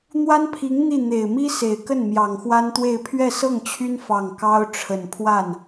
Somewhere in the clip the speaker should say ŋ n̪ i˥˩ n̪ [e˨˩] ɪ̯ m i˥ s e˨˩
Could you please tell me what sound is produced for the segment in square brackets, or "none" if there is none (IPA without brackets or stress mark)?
e˨˩